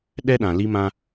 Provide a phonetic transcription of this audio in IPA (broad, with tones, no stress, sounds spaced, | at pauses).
ɗ ɛ˦ ɗ ã˨ l i˦ m ã˦